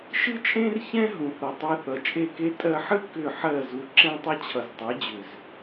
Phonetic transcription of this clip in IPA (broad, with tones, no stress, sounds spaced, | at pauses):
ʃ ɨ˦ t͡ʃʼ ẽ˦ r ç ɛ̃˦ ɦ ũ˨ θ ʌ˨ tˤ e˧ θ ʌ˨ t͡ʃʼ e˦˨ k e˦ tʼ ɜ˧ ħ ɨ˦ k ʏ˦˨ ħ ɜ˦˨ z u˨ ǁ ɛ̃˧ tˤ ʌ˧ t͡ɕʰ ʌ˨ z tˤ e˨˦ d͡ʑ ʏ˨ z